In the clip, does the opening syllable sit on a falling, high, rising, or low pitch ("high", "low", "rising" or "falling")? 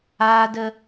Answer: low